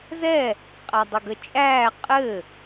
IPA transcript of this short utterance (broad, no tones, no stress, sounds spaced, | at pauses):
z ɛ | qʼ æ dˤ ɘ ɡ ə t͡ʃʼ æː qʼ ɘ